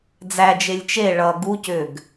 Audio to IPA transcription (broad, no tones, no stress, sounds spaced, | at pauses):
d͡z æ d͡ʒ e lʲ t͡ʃ e ɭ ʌ ɡ u c ʏ ɡ